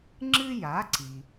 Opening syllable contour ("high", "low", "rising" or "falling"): high